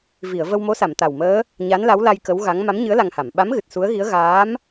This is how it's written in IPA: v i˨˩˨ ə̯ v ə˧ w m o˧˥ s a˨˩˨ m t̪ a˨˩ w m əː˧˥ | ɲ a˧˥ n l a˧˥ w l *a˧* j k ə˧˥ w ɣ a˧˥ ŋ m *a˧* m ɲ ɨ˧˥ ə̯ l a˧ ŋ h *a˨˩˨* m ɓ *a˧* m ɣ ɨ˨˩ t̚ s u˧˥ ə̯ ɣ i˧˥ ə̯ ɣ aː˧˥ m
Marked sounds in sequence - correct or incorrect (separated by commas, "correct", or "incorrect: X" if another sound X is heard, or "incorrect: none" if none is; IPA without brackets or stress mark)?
correct, incorrect: a˧˥, correct, incorrect: a˧˥